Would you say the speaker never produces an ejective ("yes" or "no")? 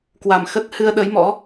yes